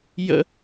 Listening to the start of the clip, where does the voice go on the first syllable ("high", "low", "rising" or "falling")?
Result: high